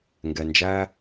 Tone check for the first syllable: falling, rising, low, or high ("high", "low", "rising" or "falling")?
low